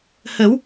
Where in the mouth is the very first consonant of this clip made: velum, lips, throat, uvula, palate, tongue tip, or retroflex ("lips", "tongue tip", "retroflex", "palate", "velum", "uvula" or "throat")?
throat